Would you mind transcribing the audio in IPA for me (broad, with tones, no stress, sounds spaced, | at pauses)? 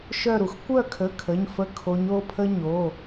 ʃ œ˦˨ ɾ u˩ x kʷ œ˦˨ kʰ ə˩˧˩ kʰ ə˩˧˩ ɲ f ə˧˥˧ kʰ o˨˦ ɲ o˩˧˩ pʰ ə˥ ɲ o˩˧˩